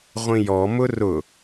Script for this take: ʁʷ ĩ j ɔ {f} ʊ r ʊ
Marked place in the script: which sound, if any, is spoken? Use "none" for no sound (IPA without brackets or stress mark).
m